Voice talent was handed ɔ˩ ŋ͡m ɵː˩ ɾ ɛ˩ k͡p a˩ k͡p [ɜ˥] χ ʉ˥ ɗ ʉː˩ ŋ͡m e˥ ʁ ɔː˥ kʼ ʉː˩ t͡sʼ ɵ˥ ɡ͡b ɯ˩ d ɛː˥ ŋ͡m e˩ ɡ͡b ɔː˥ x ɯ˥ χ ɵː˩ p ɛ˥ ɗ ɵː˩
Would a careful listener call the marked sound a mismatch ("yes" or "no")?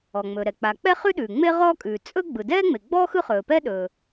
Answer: yes